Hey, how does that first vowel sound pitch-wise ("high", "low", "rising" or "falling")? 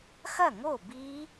falling